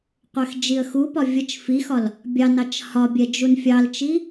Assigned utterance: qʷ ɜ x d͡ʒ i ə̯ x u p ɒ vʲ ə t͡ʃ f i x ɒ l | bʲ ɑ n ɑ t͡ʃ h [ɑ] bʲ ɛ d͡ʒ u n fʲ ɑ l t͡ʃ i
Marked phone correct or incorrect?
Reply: incorrect